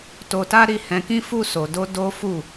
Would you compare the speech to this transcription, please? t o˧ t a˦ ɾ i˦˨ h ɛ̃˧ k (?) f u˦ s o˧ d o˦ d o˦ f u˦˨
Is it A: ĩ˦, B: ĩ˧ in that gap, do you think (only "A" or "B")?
A